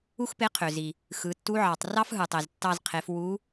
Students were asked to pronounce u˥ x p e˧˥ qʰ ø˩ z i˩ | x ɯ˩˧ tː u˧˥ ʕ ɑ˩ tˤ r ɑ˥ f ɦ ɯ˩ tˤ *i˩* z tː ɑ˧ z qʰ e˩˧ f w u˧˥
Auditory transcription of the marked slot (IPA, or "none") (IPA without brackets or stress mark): e˩